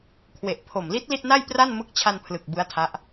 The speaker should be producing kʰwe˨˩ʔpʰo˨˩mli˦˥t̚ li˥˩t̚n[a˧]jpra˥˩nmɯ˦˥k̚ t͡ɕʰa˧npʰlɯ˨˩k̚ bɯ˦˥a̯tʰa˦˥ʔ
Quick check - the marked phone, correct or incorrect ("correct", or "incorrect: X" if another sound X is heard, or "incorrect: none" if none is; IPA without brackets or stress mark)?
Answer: incorrect: a˥˩